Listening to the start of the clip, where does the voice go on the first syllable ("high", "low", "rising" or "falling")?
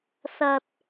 low